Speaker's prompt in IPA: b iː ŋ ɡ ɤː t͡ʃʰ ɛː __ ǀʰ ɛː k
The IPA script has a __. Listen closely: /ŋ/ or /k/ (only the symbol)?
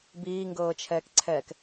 k